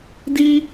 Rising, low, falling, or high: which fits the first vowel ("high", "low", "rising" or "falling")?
high